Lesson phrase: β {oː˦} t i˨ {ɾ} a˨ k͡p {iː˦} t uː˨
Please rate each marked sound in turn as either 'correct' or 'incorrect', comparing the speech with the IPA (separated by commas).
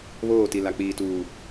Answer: incorrect, incorrect, incorrect